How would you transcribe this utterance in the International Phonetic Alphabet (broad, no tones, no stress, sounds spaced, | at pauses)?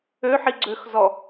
ø ħ i ɡ͡ǀ ø x z ɔ